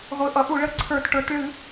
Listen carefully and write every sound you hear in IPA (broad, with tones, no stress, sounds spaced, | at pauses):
ʁʷ ɨ˩˧ ʔ ʌ˩˧ ʔ u˧˩˧ ɭ ə˩˧ ǀʰ ə˞˧˩˧ t ʈ ə˞˩˥ t ɭ ɨ˧˩˧